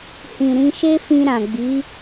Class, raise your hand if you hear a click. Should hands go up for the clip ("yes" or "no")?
no